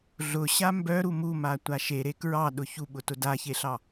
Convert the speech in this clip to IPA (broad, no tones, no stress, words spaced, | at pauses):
ɮʊɕa mbœɾu mumatʷa ʃeɾe kɹɑɗʊ çuɓʊtʊ daçeɬɑ